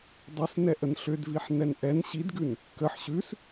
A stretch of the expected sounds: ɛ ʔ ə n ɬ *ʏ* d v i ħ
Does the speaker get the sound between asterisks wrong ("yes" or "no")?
no